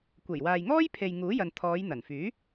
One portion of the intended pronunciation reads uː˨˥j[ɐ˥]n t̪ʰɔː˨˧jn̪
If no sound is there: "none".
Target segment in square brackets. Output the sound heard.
ɐ˨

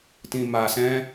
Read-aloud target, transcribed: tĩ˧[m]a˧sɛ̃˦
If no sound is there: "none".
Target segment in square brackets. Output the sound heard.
m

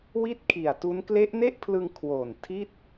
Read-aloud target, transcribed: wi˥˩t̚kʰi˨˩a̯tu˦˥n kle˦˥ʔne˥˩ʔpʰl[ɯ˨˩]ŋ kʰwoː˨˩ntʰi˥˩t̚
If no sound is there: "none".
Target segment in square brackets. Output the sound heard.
ɯ˧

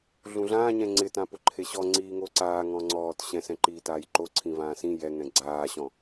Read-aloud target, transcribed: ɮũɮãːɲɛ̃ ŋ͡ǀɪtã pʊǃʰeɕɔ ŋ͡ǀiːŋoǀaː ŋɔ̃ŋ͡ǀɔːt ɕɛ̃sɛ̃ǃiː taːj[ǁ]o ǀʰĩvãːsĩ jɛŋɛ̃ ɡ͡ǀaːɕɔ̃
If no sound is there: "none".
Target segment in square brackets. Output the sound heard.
ǃ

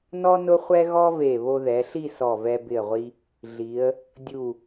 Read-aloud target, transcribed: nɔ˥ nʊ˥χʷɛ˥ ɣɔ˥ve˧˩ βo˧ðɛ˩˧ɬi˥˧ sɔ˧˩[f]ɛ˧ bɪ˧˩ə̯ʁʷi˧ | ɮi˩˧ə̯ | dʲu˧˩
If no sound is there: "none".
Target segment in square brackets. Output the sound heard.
v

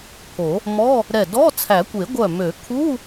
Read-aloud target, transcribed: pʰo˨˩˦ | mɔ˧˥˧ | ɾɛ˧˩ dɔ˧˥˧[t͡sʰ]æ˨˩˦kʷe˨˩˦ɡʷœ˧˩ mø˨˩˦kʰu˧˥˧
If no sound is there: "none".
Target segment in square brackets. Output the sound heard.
t͡sʰ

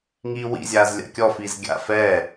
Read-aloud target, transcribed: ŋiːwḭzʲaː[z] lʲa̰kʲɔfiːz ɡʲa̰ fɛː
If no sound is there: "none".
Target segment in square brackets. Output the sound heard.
z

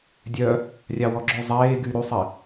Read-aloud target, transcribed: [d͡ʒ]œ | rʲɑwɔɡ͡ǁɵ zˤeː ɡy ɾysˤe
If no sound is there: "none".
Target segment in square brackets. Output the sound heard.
dʲ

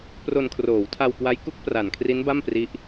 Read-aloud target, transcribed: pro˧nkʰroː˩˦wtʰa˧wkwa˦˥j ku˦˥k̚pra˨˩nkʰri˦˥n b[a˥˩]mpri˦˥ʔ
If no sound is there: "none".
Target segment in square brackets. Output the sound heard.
a˥˩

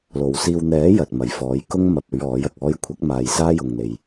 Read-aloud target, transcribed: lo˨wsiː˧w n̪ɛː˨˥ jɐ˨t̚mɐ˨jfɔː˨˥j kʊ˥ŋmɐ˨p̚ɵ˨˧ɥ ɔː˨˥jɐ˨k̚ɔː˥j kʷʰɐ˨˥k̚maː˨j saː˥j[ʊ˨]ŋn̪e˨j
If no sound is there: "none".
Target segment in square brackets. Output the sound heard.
ʊ˨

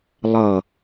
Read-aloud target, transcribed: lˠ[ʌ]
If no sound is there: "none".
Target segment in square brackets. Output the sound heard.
ʌ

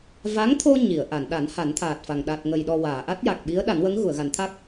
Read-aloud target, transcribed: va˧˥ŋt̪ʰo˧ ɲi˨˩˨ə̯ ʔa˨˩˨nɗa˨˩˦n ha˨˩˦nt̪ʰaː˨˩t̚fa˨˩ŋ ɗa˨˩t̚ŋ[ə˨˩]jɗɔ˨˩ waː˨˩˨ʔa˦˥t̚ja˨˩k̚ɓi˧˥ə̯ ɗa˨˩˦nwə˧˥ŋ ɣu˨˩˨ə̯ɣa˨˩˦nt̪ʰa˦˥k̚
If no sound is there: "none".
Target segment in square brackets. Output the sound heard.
ə˨˩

